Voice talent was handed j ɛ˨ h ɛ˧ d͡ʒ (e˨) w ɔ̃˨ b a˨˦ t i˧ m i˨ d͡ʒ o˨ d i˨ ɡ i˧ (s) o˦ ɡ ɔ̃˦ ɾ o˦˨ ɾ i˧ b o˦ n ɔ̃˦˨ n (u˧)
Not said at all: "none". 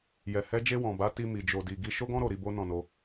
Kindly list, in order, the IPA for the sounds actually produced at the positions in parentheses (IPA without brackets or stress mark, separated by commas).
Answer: e˧, ʃ, o˧